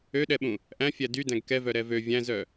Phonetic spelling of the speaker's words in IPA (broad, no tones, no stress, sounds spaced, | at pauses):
ø ɗ ɛ ɓ ũ | ʔ æ̃ fʲ æ d y d æ̃ ɡ k ɛ v œ ɾ ɛ v ø vʲ æ̃ z œ